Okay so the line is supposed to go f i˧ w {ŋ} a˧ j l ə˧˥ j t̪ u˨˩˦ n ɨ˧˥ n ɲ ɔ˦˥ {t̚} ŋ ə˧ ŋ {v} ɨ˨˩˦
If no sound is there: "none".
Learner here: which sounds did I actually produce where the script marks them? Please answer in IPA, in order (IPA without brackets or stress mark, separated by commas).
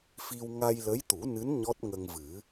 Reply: ŋ, t̚, v